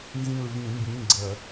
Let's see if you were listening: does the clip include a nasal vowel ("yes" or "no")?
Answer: yes